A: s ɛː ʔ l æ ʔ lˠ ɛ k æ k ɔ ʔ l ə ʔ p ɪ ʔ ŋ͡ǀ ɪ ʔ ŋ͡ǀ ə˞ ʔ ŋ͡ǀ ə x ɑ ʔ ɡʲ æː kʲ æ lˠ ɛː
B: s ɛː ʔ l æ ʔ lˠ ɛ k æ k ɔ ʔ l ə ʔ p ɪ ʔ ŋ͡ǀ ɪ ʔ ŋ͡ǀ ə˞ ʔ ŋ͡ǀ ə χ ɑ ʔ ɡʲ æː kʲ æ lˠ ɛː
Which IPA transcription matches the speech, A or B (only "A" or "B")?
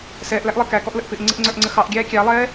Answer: A